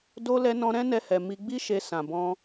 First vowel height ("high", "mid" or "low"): mid